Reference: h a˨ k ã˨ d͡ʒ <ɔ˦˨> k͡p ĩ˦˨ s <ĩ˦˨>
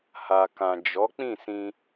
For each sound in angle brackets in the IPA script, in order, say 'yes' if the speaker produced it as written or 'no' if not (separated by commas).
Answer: no, no